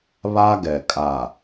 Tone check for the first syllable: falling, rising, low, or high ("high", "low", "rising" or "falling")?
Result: high